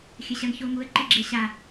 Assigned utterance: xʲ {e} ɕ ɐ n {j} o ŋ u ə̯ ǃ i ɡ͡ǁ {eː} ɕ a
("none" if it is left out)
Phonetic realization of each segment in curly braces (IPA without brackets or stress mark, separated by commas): ɘ, ç, e